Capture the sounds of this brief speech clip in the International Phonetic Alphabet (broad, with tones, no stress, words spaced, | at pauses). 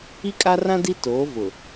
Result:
i˦kʼa˦rã˦ di˦toː˨˦ vʊ˨